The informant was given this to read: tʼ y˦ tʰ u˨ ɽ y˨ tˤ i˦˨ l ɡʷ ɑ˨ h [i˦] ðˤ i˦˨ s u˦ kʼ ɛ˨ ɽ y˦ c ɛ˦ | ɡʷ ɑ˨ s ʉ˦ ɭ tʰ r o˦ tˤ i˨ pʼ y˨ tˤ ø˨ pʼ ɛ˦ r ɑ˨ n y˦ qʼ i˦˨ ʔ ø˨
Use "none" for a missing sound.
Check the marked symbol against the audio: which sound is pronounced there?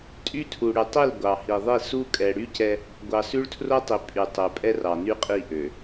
i˨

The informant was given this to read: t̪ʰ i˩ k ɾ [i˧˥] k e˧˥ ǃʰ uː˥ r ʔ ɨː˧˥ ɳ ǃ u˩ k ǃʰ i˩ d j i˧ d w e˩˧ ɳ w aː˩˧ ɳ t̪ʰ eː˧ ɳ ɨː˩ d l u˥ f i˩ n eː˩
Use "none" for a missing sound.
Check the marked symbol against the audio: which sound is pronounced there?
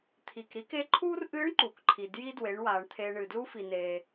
i˧˥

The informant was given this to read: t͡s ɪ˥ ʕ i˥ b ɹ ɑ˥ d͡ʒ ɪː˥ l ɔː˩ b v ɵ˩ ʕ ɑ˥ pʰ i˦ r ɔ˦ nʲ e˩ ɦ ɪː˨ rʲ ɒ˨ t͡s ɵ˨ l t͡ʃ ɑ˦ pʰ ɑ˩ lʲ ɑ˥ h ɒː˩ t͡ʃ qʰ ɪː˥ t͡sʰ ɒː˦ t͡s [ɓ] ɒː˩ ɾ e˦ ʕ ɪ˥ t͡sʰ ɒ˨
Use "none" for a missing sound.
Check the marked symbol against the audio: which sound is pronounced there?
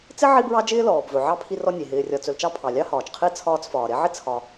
f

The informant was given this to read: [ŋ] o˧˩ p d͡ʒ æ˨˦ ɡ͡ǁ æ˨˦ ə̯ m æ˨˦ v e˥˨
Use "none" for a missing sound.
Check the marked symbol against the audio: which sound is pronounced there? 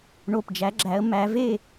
ɳ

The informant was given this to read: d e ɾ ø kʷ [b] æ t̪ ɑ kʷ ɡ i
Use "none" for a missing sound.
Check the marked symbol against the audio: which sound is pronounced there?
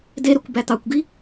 b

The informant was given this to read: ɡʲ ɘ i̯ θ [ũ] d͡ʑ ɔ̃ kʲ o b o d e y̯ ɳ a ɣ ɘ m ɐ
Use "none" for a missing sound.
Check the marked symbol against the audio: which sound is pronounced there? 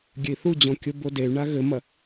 u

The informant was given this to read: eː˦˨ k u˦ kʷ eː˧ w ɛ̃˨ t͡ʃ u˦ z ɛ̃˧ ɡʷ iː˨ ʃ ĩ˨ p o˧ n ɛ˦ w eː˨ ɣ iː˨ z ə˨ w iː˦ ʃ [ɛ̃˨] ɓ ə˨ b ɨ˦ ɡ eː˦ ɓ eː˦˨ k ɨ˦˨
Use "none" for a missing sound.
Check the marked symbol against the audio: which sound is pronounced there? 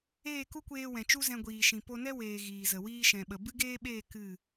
ɛ̃˨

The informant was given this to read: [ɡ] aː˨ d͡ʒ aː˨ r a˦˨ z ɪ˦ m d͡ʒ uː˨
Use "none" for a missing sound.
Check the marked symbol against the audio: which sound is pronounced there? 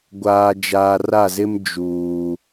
ɡʷ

